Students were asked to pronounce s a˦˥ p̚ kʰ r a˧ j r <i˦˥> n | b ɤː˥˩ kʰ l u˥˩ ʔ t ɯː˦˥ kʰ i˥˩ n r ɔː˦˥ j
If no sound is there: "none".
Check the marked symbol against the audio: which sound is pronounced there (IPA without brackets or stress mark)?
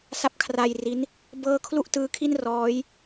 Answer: i˦˥